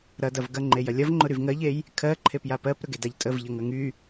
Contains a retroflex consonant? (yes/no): no